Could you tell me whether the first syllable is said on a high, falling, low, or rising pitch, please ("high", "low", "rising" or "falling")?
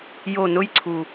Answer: falling